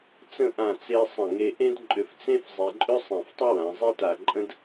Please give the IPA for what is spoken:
t͡s ə̃˥˧ ʔ ã˧˩ t͡s e˧ sˤ ə̃˧˩ ŋ e˧ ʔ ẽ˥ d ǃʼ ʏ˧ f t͡s ẽ˥ f zˤ e˧ ǃʼ ʏ˥ sˤ ẽ˧˩ f tˤ ə˥ w ã˩˧ zˤ e˥ t a˧˩ ǃʼ ə̃˥ d

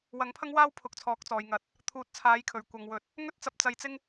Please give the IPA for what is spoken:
w ɐ˨˥ ŋ pʰ ɐ˥ ŋ w aː˥ w pʰ ʊ˨˥ k̚ t͡sʰ ɔː˨˥ k̚ t͡s ɔː˨ j ŋ ɐ˨˥ t̚ | t̪ʰ uː˨˥ t̚ t͡sʰ aː˨˥ j kʰ ɵ˨˩ ɥ kʷ ɐ˨ ŋ w ɵ˨˥ t̚ | ŋ ɵ˥ t̚ t͡s ɐ˧ p̚ t͡s ɐ˧ j t͡s ɪ˥ ŋ

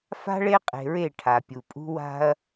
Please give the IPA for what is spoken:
f a̤˦ ɭ e˦ qʼ e̤˨ ɹ e˦˨ ʈʰ a˨ pʲ u˨ pʼ ṳ˦ w a̤˦ ɐ̯

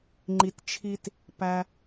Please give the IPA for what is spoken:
ŋ͡ǃ i˨˦ t t͡ʃʰ i˦ t | p æ˧

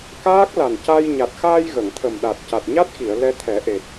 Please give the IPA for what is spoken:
k aː˦˥ k̚ l a˨˩ n c a˧ j ɲ a˨˩ t̚ x aː˧ j ɣ ə˨˩˨ ŋ t̪ʰ ə˨˩ m ɗ a˨˩ t̚ c a˨˩ t̚ ɲ a˦˥ t̚ x i˨˩˨ ə̯ l ɛ˧ t̪ʰ ɛ˨˩˦ ʔ e˨˩ t̚

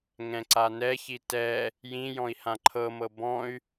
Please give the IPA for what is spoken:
ŋ ɛ̃ ǀ a n ɛ ç i t ɛ | j ĩ j ɔ̃ i̯ h ã ǃʰ ɤ m ɤ b ɔ̃ y̯

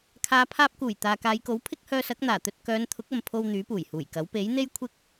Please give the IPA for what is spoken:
kʰ aː˨˧ pʰ aː˧ p̚ k uː˨˩ j t̪ aː˨ k aː˨˧ j k o˨˥ w pʰ ɪ˥ k̚ h œː˧ s ɐ˨˥ k̚ n̪ aː˨˩ t̪ ɵ˧ t̚ k œː˨˧ n t̪ʰ ʊ˨˥ k̚ ɐ˨ m pʰ o˧ w n̪ yː˨˥ p uː˨˩ j h uː˨˩ j k ɐ˨˥ w p e˨˥ j n̪ e˥ j kʷʰ ɪ˥ k̚

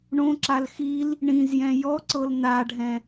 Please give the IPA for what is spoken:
ɳ õ ǁ a l x i l | ɳ ĩ z j ɛ̃ j ɔ ǀ ɤ l n a ɖʱ ɛ̃

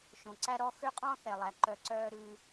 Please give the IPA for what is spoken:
ʃ õ˨ ǀ æ˧ ɾ ɔ˧ x ø˦ qʼ ɔ̃ː˦ θ ɛ˨ lˠ æ˨ ǃ œ˧ ǀ œː˦ ɾ ʉ˧

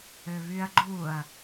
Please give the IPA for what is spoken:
ø β y ɐ̯ ɡ͡ǃ u ɐ̯

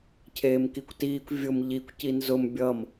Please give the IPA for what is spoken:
cʰ eː m k i kʷ t iː kʷ vʲ ʊ m ʎ i kʷ c i n z ʊ m bʲ ʌ m

